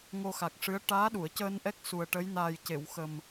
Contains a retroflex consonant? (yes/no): yes